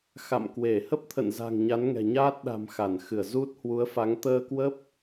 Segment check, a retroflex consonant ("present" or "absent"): absent